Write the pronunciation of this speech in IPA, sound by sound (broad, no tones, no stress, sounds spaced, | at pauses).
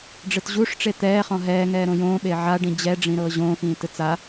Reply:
ɖ͡ʐ ɯ t ʑ u ʂ ʈ͡ʂ e t̪ ɛː χ ɔ̃ ɦ ɛː ŋ ɛː ɾ õ j õː ɓ e ʕ a ɖ ĩ d͡ʑ ɛ ɖ͡ʐ ĩ ɾ ɤː ʑ õː x ĩː t ɯ t͡s a